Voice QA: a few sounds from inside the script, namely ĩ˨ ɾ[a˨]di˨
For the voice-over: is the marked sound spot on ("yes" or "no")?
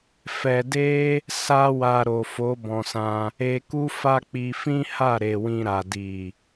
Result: yes